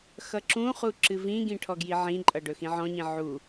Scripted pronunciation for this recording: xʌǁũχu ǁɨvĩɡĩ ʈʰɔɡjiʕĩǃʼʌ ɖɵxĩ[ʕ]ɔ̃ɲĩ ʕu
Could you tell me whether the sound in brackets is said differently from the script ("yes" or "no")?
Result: no